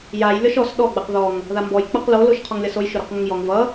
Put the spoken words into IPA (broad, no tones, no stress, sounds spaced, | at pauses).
j a j lʲ ɔ ʃ ɔ s ɗ ɔ ɡ͡b a q ð ɔ ŋ | ð a m b ɔ j k͡p ʌ q l o l o ʃ qʰ ɔ ŋ lʲ ʌ s o j ʃ ʊ ɾ ɔ q ŋ ʊ ŋ j ɔ ŋ v ʌ